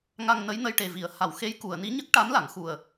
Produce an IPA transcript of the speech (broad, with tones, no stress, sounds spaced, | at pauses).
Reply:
ŋ a˧ ŋ n ə˧˥ j n ə˧ j ʈ e˨˩ v i˨˩˦ ə̯ h a˨˩˨ w x e˧˥ j k u˨˩˨ ə̯ n i˧˥ ɲ ə˦˥ k̚ ʈ a˧˥ m l a˨˩˨ ŋ x u˨˩ ə̯